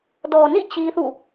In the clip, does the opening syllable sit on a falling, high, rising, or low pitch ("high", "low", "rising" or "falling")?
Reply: low